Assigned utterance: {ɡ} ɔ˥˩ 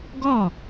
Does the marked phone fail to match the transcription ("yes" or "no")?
no